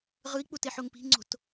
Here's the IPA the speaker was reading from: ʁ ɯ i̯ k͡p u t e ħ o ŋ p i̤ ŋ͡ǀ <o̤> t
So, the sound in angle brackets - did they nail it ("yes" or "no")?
yes